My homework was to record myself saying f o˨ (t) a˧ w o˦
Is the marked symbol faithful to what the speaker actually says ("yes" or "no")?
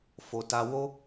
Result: yes